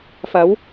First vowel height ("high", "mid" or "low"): low